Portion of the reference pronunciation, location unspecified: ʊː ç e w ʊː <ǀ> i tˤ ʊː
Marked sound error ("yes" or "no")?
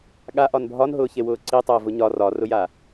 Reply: no